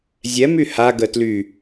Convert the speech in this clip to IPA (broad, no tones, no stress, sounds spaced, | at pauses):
zʲ ɛ m y h a ɡ ə t l y